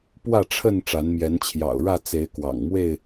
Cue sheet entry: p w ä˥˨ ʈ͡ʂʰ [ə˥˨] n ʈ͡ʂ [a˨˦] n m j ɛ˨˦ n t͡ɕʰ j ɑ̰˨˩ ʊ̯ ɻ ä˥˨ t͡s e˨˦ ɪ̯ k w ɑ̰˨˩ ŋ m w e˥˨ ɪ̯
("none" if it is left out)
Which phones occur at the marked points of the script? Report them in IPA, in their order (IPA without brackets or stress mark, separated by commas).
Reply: ə˥˨, a˨˦